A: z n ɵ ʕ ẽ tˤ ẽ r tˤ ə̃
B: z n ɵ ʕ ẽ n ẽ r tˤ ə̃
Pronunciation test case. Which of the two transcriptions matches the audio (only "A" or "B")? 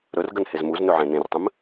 B